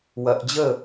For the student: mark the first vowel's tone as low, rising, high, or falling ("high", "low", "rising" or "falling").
low